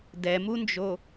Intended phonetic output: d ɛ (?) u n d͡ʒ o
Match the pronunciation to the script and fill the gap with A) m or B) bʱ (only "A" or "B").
A